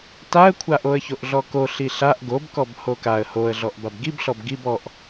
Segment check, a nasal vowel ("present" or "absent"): absent